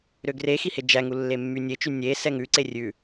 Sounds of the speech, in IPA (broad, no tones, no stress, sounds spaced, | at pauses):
ɾ ø ɡ r e x i h e d͡ʒ æ ŋ u lː e mː y nʲ e t͡ʃ y nʲ e s ɛ ŋ ʉ ǀ e rʲ ʉ